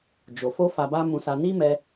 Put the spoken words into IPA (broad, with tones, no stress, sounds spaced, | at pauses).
d͡ʒ o˨ f o˧ f a˧ b a˦ m ũ˧ s a˧ n i˦ m ɛ˧